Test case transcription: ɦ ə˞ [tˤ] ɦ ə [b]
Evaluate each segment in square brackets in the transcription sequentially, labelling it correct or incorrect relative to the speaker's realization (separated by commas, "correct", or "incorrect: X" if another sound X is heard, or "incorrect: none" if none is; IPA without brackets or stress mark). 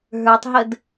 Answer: correct, incorrect: d